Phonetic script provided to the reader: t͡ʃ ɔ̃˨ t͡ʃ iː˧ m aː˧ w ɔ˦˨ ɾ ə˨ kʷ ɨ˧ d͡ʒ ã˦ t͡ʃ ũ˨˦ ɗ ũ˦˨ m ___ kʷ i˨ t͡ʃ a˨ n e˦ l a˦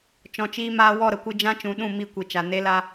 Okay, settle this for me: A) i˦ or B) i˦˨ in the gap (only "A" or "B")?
B